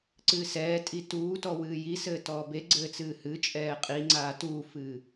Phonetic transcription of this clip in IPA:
ǀ ɨː s ɛː tʼ i t uː t ɔ w ɨː j i s ɘː t ɔː b e ɡ͡ǀ ɘː t͡s ɨː h ɨ t͡ʃʼ ɛː qʼ i ŋ͡ǀ aː t uː f ɨː

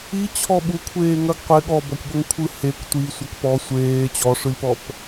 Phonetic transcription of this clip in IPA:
i t͡ɕʰ ɔ ɓ u kʷʰ eː ŋ ɐ ɡ qʷ ɪ ɠ ɔ b ɔ kʷ ɠ o ŋ kʷʰ ɯ h e kʷ tʷ i sʷ ɐ k p ɔ sʷ eː t͡ɕ ɔ ʂ ɯ lʲ p ɔ p

